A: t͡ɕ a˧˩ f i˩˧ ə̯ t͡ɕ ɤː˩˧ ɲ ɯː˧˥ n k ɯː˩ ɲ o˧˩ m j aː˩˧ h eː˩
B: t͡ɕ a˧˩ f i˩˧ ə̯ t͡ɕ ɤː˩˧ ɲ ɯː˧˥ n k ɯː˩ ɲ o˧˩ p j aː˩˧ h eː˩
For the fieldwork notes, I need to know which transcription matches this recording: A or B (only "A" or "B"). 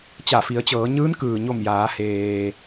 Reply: A